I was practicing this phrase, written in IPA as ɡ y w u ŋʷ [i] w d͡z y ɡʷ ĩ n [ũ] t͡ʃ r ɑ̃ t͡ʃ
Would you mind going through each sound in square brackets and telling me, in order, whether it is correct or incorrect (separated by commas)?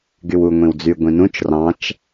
incorrect, correct